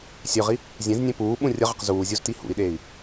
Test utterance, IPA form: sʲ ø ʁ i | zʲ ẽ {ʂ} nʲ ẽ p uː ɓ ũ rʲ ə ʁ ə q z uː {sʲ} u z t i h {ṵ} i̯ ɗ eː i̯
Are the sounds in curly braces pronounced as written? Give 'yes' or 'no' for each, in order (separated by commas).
no, no, yes